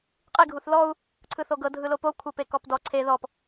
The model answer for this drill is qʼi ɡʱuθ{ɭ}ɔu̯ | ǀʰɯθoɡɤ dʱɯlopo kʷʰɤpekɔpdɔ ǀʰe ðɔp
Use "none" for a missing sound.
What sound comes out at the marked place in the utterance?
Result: l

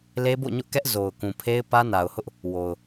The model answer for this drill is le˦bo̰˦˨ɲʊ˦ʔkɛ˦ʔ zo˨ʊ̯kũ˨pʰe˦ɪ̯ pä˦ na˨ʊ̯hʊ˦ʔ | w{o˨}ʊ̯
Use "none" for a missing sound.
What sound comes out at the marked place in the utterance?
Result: o˨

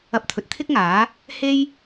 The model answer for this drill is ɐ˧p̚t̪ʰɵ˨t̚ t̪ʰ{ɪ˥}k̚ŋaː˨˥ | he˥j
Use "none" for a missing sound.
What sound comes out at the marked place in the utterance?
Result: ɪ˥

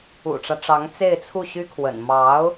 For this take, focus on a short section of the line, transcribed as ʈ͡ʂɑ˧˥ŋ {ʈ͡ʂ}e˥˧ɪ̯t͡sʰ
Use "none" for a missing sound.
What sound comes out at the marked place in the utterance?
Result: t͡s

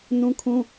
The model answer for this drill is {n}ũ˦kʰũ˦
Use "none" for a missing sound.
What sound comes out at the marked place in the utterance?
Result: n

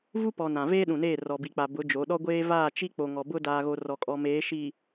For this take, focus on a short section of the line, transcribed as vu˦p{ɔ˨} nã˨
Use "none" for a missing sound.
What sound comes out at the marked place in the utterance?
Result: ɔ˨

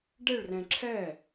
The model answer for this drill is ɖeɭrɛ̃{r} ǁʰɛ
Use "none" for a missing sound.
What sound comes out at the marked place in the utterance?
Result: none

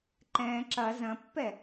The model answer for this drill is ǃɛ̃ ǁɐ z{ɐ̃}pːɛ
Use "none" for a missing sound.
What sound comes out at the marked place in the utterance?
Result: ɐ̃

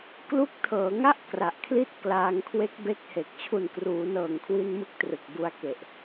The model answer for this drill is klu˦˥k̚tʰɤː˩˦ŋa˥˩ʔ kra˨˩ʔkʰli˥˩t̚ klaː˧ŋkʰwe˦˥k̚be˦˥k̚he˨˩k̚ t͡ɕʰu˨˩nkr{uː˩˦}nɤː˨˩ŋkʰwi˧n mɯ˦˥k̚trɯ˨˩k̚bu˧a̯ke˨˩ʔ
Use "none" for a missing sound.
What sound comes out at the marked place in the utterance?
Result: uː˩˦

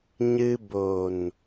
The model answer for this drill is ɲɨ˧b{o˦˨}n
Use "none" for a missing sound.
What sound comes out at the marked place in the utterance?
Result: o˨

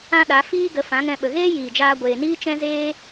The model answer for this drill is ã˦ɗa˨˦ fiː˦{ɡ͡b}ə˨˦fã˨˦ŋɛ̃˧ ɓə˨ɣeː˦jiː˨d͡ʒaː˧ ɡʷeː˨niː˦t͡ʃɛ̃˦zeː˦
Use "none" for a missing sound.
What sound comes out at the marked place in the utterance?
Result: ɡ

